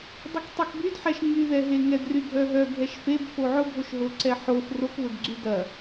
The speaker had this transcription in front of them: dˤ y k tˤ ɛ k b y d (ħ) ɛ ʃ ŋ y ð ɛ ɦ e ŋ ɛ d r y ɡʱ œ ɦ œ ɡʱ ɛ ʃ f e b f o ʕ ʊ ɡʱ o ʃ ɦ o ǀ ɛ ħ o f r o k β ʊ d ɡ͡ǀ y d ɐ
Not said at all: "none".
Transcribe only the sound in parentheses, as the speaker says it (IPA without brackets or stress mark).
ħ